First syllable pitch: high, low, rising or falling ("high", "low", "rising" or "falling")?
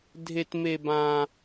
high